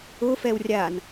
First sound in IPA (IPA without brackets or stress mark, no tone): ʊ